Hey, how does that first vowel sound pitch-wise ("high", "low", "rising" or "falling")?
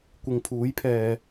low